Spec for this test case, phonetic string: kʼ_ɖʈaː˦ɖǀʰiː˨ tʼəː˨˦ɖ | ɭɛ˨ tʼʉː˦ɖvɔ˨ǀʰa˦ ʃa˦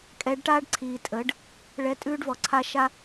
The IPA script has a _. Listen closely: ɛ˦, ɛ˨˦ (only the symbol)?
ɛ˨˦